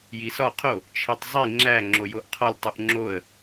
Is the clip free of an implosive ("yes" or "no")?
yes